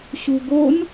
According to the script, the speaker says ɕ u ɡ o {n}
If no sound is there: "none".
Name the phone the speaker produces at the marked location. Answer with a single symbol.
n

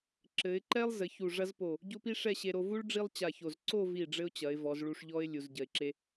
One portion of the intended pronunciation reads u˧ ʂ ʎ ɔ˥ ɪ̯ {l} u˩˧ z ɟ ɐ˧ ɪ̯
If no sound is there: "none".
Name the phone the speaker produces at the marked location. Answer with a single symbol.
lʲ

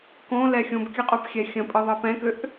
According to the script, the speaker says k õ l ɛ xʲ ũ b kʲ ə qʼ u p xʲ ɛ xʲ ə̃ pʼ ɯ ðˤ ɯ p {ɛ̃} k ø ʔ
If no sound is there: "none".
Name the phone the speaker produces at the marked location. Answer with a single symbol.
ɛ̃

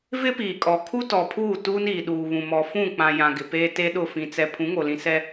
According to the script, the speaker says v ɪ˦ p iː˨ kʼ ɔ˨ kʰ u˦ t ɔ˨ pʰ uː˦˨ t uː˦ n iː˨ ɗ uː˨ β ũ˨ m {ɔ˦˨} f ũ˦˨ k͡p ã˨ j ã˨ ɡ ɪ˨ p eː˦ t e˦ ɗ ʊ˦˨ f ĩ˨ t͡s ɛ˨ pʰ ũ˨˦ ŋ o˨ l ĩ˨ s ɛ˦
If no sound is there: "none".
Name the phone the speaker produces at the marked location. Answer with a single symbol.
ɔ˨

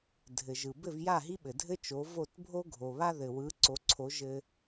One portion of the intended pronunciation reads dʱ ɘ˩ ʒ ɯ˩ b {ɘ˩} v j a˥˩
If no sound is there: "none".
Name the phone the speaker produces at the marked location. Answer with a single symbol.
ɘ˥˩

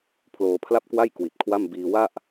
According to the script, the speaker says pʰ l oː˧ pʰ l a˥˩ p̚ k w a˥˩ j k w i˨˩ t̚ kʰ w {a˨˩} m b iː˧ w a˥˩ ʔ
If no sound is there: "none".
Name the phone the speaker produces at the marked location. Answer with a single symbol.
a˥˩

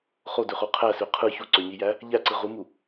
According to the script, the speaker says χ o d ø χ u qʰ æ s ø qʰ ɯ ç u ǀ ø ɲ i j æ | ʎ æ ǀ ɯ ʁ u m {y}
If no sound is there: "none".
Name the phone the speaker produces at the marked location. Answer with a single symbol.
u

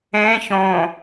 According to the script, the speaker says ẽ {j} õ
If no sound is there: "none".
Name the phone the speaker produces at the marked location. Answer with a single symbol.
ç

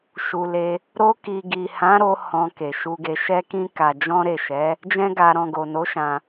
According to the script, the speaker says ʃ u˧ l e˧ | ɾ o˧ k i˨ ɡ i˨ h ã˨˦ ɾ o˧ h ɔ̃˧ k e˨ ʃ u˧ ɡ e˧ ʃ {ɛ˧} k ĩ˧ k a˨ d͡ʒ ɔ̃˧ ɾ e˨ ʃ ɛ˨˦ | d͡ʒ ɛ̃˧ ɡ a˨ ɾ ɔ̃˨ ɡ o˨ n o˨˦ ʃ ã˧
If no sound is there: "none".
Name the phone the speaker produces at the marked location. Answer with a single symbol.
ɛ˧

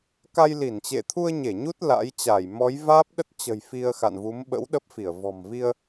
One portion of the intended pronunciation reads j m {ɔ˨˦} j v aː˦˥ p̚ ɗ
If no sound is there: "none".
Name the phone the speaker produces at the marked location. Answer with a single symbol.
ɔ˨˦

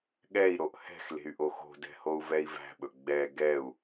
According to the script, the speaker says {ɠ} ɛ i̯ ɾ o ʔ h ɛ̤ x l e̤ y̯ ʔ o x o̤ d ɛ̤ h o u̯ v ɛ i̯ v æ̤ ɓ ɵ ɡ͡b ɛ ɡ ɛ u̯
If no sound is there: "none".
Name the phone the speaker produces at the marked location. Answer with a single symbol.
ɠ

